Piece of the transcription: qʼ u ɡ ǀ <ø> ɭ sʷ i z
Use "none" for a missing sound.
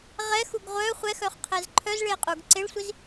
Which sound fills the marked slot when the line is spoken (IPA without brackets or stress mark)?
e